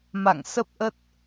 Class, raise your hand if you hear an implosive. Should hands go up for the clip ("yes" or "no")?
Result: no